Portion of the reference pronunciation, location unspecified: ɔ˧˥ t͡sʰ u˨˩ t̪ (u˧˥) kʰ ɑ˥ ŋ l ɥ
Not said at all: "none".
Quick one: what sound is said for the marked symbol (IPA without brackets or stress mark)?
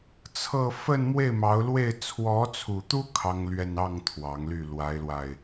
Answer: u˥